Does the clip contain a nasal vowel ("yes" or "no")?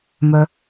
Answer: no